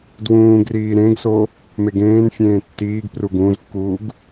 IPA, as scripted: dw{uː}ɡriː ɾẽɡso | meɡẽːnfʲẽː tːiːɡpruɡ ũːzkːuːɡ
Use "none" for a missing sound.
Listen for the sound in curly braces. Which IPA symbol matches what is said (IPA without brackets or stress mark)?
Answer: ũː